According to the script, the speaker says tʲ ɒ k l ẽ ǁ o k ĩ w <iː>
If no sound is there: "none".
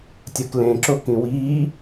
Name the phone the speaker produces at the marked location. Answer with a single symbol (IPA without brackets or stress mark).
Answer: iː